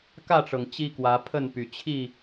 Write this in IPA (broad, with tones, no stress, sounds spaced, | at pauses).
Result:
k ä˥˨ ʈ͡ʂ ɤ˩ ŋ t͡ɕ i˦ k w ä˨˦ pʰ ə˥˨ n p y˨˩ t͡ɕʰ i˥˨